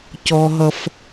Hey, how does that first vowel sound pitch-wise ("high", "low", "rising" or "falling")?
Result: high